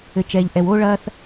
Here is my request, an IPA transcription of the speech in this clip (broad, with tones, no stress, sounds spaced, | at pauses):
ɘ˨ t͡ʃ ɛː˨ ʎ ʔ ɛ˨ w oː˦ ɭ ɐː˦ θ